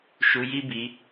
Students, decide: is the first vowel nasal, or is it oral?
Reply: oral